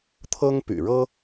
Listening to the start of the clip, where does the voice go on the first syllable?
high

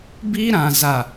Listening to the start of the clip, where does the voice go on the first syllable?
high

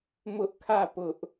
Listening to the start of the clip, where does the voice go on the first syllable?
high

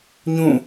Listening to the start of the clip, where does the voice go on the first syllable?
falling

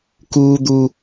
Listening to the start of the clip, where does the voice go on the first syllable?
high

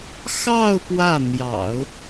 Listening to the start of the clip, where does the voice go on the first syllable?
falling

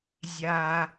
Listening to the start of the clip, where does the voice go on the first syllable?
high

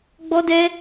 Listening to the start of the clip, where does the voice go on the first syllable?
high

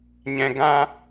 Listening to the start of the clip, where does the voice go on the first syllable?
low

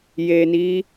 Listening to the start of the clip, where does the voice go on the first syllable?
low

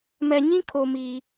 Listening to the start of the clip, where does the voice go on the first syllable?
low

